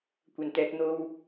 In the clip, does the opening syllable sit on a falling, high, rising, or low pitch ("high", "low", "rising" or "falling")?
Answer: low